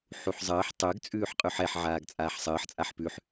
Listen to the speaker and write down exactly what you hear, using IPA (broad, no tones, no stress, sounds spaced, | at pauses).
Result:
ħ u ħ zˤ əː ħ tˤ ø ɡ t͡sʼ ʉː ħ qʼ ʉ ħ ɛ ħ ʕ aː ɡ t͡sʼ aː ħ sˤ əː ħ t͡sʼ a ħ p ʉ ħ